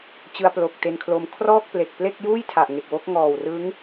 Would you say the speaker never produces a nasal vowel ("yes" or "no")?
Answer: yes